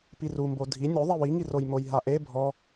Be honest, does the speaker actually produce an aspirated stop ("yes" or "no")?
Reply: no